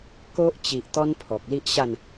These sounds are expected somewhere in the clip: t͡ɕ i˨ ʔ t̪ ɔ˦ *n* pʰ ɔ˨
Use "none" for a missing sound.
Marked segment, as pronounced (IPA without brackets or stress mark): n